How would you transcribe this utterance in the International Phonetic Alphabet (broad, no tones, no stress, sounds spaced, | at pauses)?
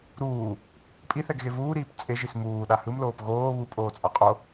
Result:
ɾ uː | pʼ i θ ɛ ɡ ɣ e v uː ɾ iː p t͡sʼ e ʒ i s m uː ɗ a h ɯ m l oː p ɣ oː β u pʼ oː t͡sʼ a qʼ o